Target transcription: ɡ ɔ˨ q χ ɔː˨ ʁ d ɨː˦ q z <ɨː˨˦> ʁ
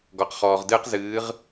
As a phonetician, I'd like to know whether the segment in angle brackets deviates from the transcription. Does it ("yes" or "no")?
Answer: no